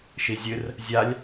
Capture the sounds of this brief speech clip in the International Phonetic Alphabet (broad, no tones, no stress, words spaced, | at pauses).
ʃizʲɨr | zʲalʲ